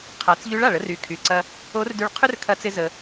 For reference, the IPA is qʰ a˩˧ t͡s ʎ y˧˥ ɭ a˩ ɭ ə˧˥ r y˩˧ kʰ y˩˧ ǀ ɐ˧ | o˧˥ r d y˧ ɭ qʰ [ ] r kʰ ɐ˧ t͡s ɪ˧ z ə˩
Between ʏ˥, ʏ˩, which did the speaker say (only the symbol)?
ʏ˥